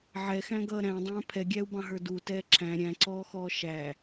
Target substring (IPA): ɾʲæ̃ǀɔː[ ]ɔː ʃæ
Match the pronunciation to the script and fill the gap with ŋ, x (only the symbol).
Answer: x